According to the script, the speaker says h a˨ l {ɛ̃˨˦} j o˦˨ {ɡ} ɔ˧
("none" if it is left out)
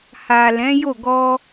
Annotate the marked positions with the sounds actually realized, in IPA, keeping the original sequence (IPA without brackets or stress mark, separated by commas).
ɛ̃˨˦, ɡ